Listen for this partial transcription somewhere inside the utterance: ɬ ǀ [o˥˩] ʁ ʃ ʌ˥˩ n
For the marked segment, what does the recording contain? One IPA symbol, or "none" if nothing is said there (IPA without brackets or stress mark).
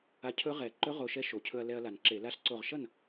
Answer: o˧˩